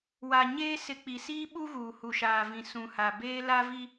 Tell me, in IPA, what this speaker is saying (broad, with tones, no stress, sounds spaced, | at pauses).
w a˨ ɲ eː˦ s ɪ˨ k͡p i˨ s iː˦ ɓ u˦ ɣ uː˨ h u˨ ʃ aː˨ v ĩ˨ s ũ˨ h a˨ b eː˦ l a˦ v i˦